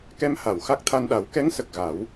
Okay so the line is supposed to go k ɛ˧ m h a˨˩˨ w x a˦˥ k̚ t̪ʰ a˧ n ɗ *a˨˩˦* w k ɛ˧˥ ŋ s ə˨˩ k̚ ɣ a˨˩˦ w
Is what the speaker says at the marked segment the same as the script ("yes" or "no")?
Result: yes